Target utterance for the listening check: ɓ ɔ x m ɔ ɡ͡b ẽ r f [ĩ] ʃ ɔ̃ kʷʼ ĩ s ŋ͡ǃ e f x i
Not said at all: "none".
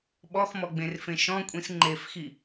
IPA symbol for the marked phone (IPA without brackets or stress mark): ẽ